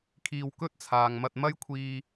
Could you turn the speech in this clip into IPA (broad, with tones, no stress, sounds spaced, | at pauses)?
kʰ iː˧ w k ɵ˥ t̚ t͡sʰ aː˨ ŋ m ɐ˧ t̚ m ɐ˥ j kʷʰ iː˧